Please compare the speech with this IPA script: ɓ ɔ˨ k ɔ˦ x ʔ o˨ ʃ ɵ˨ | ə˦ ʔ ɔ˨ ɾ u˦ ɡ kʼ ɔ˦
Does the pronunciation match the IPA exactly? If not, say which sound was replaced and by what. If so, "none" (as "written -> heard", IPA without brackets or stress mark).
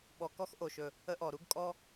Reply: none